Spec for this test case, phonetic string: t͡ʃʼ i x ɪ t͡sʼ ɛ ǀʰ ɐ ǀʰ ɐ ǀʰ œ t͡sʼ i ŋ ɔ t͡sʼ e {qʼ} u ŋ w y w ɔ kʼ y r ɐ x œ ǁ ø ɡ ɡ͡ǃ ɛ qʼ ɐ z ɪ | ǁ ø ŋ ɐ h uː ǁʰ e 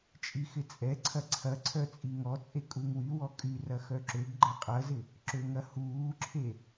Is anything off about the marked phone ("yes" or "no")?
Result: yes